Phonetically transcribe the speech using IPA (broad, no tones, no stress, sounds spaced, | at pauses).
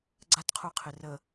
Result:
ɡ͡ǀ a t qʰ u qʰ ɪ r ə